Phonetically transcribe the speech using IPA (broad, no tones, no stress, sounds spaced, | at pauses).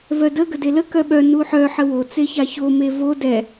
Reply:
v œ d ə ɡ ə d e l ə k œ ɓ œ n u ħ œ ħ ə w o t͡s e ç a ç o m e v o d ɛ